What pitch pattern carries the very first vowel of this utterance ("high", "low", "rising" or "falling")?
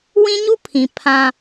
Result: high